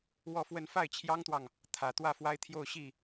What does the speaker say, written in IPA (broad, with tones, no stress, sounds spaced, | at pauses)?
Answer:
w ɔ˥˧ f w ə˥˧ n f a˥˩ ɪ̯ t͡ɕʰ j ɑ˥ ŋ t̪ w ɑ˨ ŋ | t̪ʰ ä˨˩ t̪ w ä˥˩ f w a˥ ɪ̯ t̪ʰ j o˥˧ ʊ̯ ɕ i˥˩